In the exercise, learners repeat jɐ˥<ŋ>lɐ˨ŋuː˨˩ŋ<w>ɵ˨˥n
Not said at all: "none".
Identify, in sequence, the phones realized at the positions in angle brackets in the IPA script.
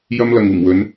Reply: m, w

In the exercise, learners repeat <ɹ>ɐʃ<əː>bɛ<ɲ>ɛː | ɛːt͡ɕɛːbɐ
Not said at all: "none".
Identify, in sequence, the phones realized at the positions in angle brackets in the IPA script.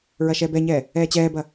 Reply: ɹ, ɛː, ɲ

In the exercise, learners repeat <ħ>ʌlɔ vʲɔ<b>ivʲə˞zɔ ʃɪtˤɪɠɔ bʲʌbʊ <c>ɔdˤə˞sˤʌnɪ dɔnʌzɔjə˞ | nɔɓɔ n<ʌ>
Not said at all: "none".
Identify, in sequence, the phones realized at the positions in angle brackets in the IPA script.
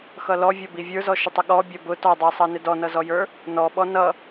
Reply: x, b, t, ʌ

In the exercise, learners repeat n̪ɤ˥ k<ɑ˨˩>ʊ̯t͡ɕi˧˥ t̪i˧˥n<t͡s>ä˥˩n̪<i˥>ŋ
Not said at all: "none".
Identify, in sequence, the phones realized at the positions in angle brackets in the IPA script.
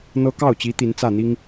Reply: ɑ˥˩, t͡s, i˥

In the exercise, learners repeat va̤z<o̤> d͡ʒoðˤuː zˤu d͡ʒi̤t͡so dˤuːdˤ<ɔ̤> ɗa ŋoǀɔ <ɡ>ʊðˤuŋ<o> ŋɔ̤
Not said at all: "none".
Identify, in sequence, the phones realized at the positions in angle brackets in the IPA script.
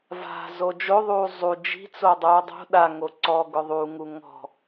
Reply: o, o̤, ɡ, u

